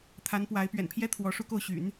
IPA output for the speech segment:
t̪ʰ a˧˥ n p w a˧˥ ɪ̯ p ɥ ɛ̰˨˩ n pʰ j ɛ˥ t̪ʰ w ɔ˧˥ ʂ u˥˧ k o˥˩ ʊ̯ ɕ y̰˨˩˦ n

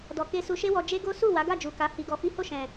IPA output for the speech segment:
d ɔ˨ k e˧ s u˧ ʃ e˦ w ɔ˧ d͡ʒ e˦ ɡ o˦ s u˦˨ w a˨˦ ɡ a˦˨ d͡ʒ u˨ k a˨˦ h i˧ ɡ ɔ˧ f i˦ h o˦˨ ʃ ɛ̃˨

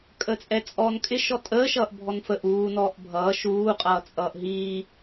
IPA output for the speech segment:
kʼ əː t͡sʼ ɛ t͡sʼ ɔː n kʼ ɪ ʃ ɔ tʼ əː ʃ ʌː ʔ bʱ ɔ n f ə ʔ uː n ɔː ʔ bʱ ʌː ʃ uː qʼ ʌː t͡sʼ ʌː ʔ ɦ iː

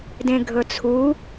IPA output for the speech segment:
d ẽ ɡʱ ɵ t͡sʰ u

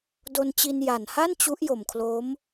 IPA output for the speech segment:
d o˧ n t͡ɕ i˧ n j a˨˩ n h a˥˩ n t͡ɕ u˦˥ ʔ j o˨˩ m kʰ l oː˦˥ m

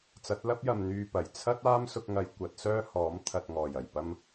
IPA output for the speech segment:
t͡s ɐ˨˥ t̚ l ɐ˥ p̚ j ɐ˨ m n̪ yː˧ p ɐ˨˩ j t͡sʰ ɐ˥ t̚ aː˥ m s ʊ˧ k̚ ŋ ɐ˨˧ j kʷ ɐ˨˥ t̚ s œː˥ h ɔː˨˥ m t̪ʰ ɐ˨ t̚ ŋ ɔː˨˩ j ɐ˨˩ j p ɐ˧ m

